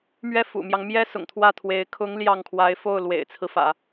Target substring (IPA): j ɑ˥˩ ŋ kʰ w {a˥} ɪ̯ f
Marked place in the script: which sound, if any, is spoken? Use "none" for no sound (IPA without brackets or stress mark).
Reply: a˧˥